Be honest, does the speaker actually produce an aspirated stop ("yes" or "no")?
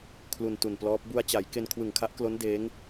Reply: yes